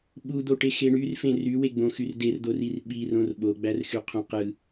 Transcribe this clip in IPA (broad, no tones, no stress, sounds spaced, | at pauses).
ɓ u d̪ o ʈ e x e ɳ y r f ẽ r y w e ɡ͡b õ x y r d e r d̪ o r i r ɓ i r õ r ɓ o ɡ͡b æ r x y qʰ õ q ɯ